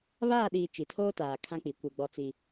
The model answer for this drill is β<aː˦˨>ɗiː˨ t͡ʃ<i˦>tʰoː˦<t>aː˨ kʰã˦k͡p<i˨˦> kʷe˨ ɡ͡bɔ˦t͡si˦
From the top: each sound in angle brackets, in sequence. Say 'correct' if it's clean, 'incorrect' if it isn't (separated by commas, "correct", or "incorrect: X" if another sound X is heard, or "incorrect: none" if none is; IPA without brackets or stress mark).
correct, incorrect: i˨, correct, correct